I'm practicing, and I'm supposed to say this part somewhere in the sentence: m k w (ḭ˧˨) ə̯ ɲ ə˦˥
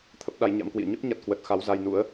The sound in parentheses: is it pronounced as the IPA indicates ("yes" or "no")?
yes